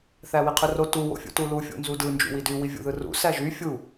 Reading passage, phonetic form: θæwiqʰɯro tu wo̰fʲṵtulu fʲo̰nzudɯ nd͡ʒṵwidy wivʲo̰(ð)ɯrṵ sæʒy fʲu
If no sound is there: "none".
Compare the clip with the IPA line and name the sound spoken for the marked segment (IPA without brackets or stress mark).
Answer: ð